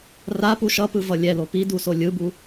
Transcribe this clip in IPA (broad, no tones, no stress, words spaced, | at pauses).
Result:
rapu ʃʌpɯ vʌlʲɛlo pidu solʲɯbu